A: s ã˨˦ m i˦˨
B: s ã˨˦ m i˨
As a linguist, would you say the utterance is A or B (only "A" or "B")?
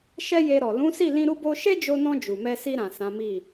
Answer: A